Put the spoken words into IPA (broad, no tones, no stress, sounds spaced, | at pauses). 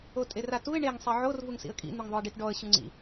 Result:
o tʼ e r a t u ɪ̯ ɳ e ŋ sˤ i ʕ o r v u ŋ s ḭ ə̯ kʼ ḭ n̪ u ŋ ðˤ o ɪ̯ ɖ i t ɖ ɔ ə̯ ɕ u ŋ͡ǀ ḭ